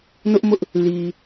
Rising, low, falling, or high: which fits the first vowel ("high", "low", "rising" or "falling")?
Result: high